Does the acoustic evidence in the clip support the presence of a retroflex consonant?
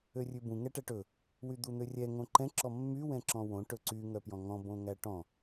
yes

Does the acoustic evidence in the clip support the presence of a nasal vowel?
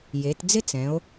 yes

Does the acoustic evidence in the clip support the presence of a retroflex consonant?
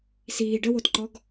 yes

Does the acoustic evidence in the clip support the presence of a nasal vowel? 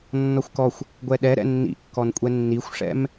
no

